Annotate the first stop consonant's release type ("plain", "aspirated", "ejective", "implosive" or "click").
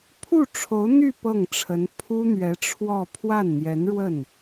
aspirated